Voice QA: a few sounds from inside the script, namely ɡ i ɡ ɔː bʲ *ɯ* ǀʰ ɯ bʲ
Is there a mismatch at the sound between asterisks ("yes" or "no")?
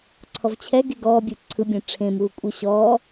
no